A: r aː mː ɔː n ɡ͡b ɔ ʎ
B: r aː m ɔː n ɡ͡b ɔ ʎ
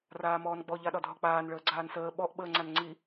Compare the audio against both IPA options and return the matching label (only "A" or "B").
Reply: B